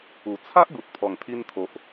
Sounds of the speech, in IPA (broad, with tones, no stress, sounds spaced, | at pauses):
u˨˩ t͡sʰ a˦ ʔ ɡ u˨ t̚ pʰ ɔ˨˩ ŋ t̪ʰ i˧ n t̪ʰ o˨ ʔ